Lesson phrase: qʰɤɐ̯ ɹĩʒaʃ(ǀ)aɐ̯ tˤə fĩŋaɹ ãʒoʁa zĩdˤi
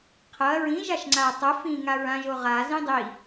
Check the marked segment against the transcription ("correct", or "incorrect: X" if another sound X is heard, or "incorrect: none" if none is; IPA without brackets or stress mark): incorrect: ŋ͡ǀ